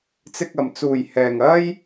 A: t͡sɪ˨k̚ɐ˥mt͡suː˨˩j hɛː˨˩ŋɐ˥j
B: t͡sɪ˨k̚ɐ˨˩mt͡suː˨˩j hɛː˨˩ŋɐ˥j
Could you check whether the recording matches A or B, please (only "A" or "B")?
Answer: B